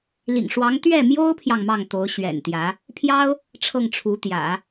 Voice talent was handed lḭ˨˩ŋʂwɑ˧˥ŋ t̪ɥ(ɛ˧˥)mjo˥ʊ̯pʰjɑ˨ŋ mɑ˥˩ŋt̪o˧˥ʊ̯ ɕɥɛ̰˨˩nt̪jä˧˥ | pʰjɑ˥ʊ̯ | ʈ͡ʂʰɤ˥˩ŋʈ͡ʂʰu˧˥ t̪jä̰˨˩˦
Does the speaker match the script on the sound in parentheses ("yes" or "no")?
no